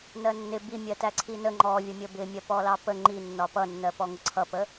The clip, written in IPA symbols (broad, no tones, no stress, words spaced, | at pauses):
nɜnːɪ bimʲɜ tæǀʰinə ŋ͡ǃɔvʲʌmʲə bɪ mʲɜpɔlɑpə ŋ͡ǃinːɒ pʌnːɜ pɔŋʊǀʰʌpə